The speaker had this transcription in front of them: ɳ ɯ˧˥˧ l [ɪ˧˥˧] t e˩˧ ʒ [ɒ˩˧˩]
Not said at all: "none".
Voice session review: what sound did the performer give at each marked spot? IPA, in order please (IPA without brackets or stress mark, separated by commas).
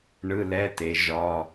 ɛ˧˥˧, ɒ˩˧˩